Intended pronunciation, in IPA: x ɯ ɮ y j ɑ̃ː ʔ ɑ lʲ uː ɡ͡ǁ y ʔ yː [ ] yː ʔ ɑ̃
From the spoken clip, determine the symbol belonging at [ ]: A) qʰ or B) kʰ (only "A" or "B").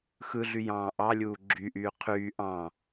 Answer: A